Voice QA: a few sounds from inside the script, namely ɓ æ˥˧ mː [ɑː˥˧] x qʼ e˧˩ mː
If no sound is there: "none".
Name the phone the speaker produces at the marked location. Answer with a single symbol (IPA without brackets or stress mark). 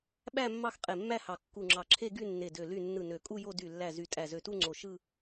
ɑ˥˧